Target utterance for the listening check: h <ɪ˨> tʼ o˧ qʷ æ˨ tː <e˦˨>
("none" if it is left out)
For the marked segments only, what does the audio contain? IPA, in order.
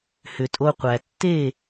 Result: ʏ˨, e˦˨

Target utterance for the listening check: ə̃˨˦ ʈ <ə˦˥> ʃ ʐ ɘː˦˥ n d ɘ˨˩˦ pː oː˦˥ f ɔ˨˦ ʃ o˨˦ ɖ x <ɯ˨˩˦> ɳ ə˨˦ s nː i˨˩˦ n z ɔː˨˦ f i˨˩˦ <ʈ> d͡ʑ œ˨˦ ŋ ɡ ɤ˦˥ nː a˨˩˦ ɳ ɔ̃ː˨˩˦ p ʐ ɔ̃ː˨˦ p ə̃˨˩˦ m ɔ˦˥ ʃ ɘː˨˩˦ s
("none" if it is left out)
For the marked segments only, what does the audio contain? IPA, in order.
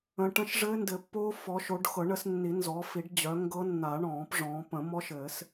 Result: ə̃˦˥, ɤ˨˩˦, ɖ

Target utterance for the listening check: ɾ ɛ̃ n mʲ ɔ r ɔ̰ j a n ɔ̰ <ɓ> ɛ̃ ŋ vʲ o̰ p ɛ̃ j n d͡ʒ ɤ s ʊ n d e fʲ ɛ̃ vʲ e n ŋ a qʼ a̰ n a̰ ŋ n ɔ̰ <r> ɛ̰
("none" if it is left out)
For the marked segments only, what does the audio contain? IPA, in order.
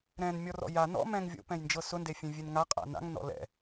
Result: m, l

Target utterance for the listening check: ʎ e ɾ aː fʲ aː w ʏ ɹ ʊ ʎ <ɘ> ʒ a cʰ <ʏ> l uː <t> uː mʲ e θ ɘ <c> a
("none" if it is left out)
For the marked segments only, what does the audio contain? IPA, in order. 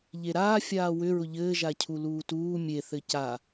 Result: ɘː, u, t, c

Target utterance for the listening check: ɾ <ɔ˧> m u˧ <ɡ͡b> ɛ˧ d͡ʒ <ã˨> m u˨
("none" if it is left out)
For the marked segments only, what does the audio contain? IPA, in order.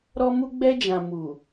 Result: ɔ˧, ɡ͡b, ã˨

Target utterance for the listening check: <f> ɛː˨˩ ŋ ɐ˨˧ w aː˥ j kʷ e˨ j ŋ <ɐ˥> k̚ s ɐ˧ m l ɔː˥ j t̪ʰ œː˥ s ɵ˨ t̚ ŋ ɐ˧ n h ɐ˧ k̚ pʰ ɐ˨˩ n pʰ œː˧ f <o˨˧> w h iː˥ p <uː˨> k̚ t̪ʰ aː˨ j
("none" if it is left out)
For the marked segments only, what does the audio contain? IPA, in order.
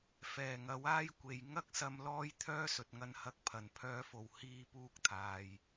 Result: f, ɐ˥, o˨˩, uː˥

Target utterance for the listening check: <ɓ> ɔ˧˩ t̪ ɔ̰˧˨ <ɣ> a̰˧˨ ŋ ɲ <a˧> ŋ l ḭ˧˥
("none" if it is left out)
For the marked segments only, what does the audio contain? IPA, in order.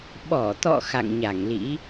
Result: ɓ, x, a˧˩

